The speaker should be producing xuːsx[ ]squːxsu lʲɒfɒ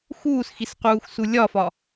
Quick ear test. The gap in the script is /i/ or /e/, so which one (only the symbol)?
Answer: i